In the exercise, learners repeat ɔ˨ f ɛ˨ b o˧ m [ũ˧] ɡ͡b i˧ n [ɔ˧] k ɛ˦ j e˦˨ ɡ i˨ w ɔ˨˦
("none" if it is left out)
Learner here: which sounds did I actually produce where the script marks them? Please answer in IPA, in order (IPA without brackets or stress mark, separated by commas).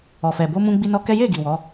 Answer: ũ˧, ɔ˧